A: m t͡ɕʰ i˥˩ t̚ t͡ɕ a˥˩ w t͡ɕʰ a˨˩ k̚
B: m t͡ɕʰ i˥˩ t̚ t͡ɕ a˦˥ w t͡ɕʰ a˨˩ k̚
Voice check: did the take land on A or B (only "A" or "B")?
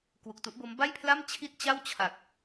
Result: A